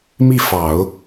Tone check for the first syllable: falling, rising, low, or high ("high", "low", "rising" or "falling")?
falling